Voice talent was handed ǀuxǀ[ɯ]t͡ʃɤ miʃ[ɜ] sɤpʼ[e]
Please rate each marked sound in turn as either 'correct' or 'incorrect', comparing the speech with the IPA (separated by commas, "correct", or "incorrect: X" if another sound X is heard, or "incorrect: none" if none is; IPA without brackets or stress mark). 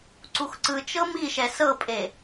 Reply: correct, incorrect: ɛ, correct